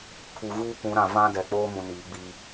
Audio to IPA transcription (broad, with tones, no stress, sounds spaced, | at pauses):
kʰ u˨ ɣ uː˦ kʷ ũ˨˦ ɾ ã˨ v ã˦ d ɛ˨ k͡p oː˦ m ũ˨ n iː˨˦ ɡ͡b i˦